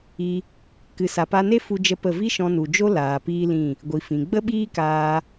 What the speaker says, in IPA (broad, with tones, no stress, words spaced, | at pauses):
i˧ | kɨ˨sa˨pa˧ne˦ fu˦d͡ʒə˦pə˦˨ vi˦ʃɔ̃˧nu˨d͡ʒo˦ laː˨piː˦lĩ˦˨ | ɡʷi˨fĩ˨ ɡ͡bə˦ɓiː˦kaː˧